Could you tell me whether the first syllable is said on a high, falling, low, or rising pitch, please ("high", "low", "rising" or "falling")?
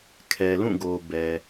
low